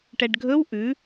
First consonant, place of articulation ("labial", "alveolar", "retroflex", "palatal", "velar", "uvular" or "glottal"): retroflex